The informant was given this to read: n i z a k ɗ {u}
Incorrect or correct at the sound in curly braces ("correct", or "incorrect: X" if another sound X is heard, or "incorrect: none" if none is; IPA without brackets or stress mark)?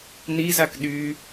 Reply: incorrect: y